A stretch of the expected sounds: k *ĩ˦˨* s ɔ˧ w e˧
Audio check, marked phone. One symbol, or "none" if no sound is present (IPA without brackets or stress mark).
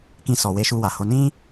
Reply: ĩ˦